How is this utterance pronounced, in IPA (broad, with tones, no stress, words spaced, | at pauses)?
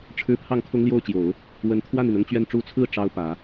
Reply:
ʈ͡ʂʰɻ̩˥ pʰɑ˥˩ŋkʰʊ˥ŋljo˥˩ʊ̯t͡ɕjo˨˩˦ʊ̯ | wə˧˥n t̪ʰwa˥˩ni˩nʊ˥˧ŋt͡ɕɥɛ˥˩n ʈ͡ʂu˧˥t͡sʰɹ̩˥˩ ʈ͡ʂɑ˥ʊ̯pä˨˩˦